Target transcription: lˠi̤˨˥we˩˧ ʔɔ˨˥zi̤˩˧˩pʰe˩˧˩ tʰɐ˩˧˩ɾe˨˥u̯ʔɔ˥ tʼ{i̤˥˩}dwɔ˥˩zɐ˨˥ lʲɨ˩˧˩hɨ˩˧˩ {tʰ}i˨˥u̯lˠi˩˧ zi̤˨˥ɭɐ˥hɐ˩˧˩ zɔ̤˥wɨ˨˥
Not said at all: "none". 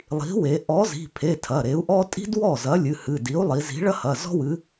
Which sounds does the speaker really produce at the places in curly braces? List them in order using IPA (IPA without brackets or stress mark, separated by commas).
i̤˥, d